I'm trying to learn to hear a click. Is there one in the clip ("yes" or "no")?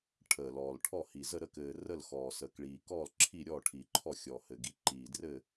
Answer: yes